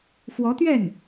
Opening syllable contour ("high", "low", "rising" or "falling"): rising